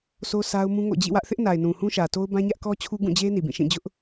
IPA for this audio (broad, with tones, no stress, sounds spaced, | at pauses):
s o˦ sʰ a˦ ʊ̯ m ũ˦ ŋ o̰˦˨ d͡ʑ ḭ˦˨ w ä˦ ʔ θ ɪ˦ ʔ n a˨ ɪ̯ n ũ˨ h ũ˦ ʃ ä˨ t o˦ ʊ̯ b ã˦ ɲ ä˦ ʔ k ɔ˦ t͡ɕʰ u˦ ɡ ũ˦˨ d͡ʑ e˦ n i˨ b ĩ˦˨ ʃ ĩ˦˨ d͡ʑ ʊ˦ ʔ